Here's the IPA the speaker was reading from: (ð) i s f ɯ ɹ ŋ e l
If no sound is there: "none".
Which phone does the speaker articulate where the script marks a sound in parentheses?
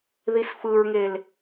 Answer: ð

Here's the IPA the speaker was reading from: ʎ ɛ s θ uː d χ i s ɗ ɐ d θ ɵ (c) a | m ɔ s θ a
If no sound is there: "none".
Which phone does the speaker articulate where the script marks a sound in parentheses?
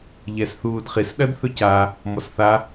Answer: c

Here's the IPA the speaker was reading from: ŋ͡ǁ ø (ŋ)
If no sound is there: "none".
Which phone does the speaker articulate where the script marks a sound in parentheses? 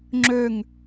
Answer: ŋ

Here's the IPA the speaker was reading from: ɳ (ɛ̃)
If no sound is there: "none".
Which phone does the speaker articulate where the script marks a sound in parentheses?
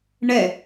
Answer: ɛ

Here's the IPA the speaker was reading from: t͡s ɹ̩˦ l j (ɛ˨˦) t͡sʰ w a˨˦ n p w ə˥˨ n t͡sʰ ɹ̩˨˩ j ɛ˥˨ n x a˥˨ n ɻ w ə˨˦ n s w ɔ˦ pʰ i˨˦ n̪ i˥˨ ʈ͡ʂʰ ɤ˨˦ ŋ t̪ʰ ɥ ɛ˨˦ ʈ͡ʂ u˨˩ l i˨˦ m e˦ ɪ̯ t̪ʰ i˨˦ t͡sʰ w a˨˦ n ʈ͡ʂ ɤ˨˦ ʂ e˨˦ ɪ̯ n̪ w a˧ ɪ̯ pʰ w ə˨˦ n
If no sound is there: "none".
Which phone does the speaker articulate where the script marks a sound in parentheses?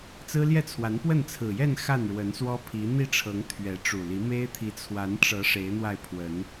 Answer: ɛ˥˨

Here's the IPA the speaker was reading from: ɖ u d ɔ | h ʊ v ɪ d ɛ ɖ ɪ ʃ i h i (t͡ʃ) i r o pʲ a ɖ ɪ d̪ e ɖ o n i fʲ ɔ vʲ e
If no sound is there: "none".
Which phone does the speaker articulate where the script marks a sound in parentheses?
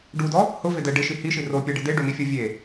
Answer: ʃ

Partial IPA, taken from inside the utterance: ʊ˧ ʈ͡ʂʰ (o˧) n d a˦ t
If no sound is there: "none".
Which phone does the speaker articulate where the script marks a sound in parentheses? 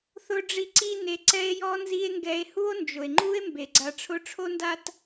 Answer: o˦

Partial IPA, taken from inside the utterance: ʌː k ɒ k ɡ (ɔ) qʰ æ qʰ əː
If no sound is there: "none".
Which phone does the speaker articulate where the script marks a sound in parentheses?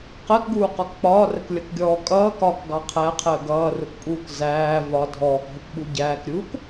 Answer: ɑ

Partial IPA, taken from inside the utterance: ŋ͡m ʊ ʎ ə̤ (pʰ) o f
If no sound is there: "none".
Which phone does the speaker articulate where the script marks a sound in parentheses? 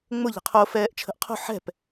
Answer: qʰ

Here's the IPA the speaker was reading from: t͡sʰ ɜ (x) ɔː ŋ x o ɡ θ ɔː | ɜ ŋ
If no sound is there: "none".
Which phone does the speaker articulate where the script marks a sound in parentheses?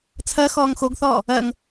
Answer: x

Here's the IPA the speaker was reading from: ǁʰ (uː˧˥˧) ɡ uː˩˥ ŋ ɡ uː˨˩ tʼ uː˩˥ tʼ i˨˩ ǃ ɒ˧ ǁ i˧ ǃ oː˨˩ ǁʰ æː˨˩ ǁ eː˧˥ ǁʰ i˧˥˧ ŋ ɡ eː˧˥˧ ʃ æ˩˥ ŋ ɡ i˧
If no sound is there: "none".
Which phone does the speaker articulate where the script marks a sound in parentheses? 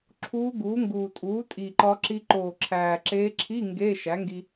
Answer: uː˧˥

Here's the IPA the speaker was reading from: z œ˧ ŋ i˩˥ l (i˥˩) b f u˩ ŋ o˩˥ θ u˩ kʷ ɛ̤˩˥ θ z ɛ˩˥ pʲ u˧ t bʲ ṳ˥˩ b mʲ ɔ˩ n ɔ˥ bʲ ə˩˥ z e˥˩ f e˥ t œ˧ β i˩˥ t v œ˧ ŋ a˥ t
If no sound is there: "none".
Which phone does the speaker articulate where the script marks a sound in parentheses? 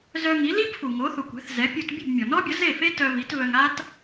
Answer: i˥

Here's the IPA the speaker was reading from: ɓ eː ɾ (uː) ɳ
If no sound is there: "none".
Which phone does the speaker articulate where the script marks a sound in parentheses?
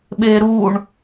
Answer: uː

